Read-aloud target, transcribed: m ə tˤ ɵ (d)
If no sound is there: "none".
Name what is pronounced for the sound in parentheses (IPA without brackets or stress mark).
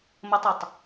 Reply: tˤ